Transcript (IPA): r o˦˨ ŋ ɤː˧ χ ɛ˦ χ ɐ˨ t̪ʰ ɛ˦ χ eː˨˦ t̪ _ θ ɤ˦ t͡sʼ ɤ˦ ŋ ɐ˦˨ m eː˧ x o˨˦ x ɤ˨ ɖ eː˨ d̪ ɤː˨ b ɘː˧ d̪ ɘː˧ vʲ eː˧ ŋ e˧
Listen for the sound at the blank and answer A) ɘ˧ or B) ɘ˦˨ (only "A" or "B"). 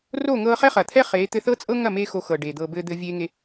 A